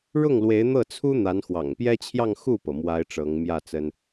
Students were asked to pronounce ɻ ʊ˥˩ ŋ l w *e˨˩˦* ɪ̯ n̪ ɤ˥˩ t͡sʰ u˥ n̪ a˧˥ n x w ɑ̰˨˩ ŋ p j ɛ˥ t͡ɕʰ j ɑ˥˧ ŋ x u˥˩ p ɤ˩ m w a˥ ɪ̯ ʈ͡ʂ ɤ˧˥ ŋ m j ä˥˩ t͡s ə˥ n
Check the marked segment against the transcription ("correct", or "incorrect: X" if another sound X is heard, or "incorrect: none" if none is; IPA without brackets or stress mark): incorrect: e˧˥